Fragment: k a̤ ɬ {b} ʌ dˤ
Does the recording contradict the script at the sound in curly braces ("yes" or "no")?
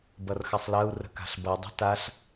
no